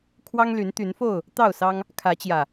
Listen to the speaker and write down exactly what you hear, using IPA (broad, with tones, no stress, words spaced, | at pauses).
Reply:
kʰwɑ˦ŋly˨˦n t̪y˨˦nfo˥˨ʊ̯ | t̪ɑ˥˨ʊ̯sɑ˦ŋ | kʰä˨˦t͡ɕjä˨˩